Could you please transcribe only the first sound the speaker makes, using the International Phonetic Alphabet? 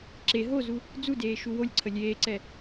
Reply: ǁ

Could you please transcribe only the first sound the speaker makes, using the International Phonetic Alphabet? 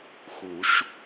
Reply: x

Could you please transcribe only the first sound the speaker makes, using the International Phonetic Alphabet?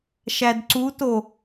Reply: ʃ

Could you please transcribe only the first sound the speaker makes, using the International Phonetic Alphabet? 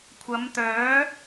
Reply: kʷʰ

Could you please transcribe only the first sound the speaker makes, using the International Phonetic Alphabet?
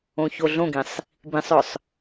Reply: õ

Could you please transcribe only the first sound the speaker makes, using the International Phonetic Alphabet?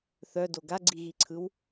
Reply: θ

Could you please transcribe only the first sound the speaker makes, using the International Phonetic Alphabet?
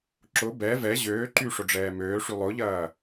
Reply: ǁ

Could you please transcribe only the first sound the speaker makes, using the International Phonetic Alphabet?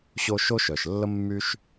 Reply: ɕ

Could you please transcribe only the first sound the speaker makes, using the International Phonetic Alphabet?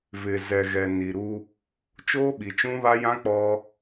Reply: v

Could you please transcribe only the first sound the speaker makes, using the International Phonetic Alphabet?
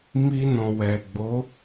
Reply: m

